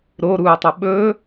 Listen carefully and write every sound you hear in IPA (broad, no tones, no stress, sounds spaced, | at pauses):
ɾ o ɾ uː tˤ ɵ ɓ ɵː